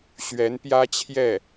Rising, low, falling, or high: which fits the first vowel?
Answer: rising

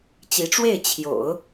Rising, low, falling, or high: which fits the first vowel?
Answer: rising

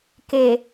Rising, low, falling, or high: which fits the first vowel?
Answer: low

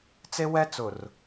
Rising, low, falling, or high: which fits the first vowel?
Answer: high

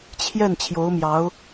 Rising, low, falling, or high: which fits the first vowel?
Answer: falling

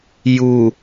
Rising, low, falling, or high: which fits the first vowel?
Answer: low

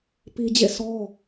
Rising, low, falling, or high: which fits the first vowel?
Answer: high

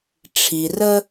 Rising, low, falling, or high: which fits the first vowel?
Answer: low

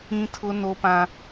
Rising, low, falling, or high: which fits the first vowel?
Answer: high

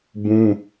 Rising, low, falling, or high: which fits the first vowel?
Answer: high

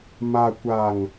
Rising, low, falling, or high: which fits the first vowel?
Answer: low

